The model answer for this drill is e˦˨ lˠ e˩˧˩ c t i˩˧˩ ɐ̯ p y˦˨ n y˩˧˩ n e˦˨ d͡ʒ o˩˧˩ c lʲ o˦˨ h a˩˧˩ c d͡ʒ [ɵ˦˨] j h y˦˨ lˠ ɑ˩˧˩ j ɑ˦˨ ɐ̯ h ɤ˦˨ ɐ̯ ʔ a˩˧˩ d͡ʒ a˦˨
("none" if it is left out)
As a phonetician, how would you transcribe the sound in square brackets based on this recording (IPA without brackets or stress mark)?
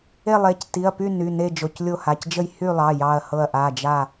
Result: ə˦˨